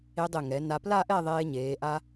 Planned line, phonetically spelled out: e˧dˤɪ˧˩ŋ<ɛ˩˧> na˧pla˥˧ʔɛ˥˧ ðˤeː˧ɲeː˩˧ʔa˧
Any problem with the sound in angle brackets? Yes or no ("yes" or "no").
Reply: no